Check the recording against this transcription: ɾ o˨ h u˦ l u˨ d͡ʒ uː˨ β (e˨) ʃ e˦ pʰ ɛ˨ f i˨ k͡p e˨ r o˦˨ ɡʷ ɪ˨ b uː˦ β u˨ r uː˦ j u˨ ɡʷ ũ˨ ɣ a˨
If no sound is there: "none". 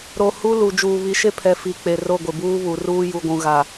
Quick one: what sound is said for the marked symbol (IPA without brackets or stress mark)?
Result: i˨